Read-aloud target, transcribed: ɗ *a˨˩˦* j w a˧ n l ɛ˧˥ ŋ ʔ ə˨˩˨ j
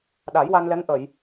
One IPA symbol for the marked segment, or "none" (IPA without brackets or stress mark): a˨˩˦